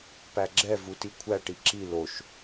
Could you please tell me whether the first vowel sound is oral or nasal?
oral